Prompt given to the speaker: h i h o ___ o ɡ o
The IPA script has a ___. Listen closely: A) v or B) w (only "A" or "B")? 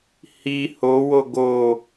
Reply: B